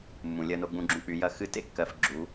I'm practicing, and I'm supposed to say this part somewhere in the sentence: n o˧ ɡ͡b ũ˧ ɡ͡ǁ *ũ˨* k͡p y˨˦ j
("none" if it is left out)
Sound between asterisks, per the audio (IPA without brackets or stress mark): ũ˧